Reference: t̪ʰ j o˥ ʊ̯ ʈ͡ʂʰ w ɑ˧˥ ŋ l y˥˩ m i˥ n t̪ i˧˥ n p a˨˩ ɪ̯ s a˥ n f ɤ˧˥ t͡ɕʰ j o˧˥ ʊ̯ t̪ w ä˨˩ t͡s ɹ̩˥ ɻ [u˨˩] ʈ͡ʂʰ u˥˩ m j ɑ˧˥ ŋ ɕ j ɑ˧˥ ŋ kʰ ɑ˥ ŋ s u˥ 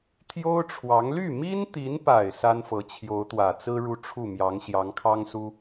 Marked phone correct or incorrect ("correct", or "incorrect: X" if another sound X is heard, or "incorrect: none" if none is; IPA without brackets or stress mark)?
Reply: incorrect: u˥˧